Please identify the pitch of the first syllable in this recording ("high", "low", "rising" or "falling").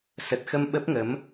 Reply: low